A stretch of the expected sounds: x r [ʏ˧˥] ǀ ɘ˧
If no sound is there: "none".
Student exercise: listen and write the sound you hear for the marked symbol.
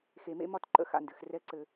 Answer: ɛ˧˥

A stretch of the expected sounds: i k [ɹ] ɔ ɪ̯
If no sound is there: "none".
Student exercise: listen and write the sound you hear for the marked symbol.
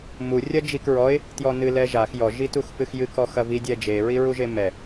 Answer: ɹ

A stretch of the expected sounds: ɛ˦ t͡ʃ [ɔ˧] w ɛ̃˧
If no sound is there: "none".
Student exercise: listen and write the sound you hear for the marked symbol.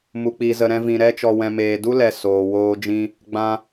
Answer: ɔ˧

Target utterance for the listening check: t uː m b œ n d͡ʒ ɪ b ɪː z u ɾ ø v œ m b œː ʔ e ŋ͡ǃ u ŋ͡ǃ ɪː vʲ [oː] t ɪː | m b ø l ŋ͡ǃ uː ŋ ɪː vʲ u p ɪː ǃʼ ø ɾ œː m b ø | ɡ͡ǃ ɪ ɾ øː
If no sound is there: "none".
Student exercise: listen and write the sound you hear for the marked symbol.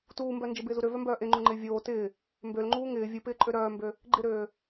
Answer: oː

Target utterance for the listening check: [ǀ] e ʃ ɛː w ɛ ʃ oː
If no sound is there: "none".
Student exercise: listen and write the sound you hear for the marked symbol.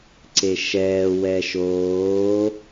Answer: ǀ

